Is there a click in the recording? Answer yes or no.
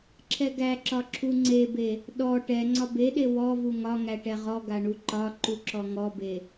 yes